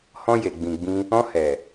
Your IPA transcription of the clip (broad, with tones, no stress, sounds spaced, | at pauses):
h ɔ̃˧ j e˨ ɡ͡b ĩ˨ ɡ͡b ĩ˧ | ɔ̃˧ h ɛ˨